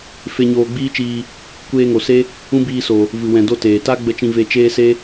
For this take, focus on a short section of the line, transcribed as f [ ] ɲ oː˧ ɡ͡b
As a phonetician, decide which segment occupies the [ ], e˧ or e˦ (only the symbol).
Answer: e˧